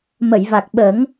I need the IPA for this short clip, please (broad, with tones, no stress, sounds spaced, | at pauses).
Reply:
m ə˨˩˨ j v a˨˩ k̚ ɓ ə˨˩˦ ŋ